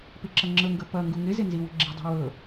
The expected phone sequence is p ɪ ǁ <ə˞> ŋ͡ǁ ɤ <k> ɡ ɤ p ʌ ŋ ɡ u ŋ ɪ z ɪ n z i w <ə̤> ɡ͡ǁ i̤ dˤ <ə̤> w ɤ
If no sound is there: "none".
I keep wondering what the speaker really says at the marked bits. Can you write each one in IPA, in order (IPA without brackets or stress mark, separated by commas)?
ʌ, ŋ, ə̤, ɛ̤